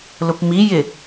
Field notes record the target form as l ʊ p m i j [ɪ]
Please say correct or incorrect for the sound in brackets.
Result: correct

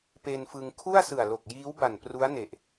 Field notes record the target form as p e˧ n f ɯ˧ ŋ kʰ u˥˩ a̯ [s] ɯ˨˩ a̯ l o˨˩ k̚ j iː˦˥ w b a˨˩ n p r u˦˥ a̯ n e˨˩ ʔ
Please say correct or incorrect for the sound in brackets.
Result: correct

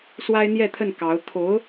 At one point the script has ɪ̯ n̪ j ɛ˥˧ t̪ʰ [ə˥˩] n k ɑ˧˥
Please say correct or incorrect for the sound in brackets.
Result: correct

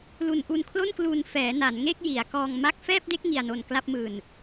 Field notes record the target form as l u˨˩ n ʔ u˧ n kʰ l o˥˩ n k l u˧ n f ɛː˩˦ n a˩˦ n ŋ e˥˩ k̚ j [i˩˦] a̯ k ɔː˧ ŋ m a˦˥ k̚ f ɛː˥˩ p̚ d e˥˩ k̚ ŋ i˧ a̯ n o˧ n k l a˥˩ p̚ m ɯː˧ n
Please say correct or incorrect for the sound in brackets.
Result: correct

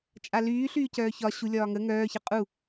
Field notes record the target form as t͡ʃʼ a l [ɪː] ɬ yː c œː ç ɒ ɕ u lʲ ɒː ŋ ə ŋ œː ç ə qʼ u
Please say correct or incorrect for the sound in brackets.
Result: incorrect: yː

